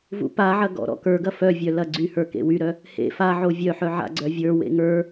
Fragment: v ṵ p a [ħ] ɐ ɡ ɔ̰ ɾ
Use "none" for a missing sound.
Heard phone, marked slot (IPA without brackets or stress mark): ʕ